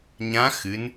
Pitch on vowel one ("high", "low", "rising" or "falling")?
rising